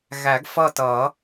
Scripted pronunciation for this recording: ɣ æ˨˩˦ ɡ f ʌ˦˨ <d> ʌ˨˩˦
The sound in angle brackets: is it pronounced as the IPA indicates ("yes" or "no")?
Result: no